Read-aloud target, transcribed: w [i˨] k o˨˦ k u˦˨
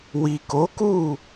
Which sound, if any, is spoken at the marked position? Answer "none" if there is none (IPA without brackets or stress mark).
i˨